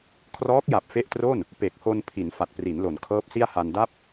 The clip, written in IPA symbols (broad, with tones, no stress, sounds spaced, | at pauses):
kʰ r ɔː˦˥ k̚ j a˨˩ p̚ f e˦˥ ʔ t r o˥˩ n | p e˨˩ k̚ h o˧ n pʰ i˩˦ n f a˨˩ t̚ p r i˩˦ n l o˩˦ n kʰ ɤː˦˥ p̚ s i˥˩ a̯ h a˧ n d a˥˩ p̚